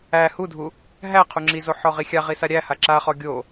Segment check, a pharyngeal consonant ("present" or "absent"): present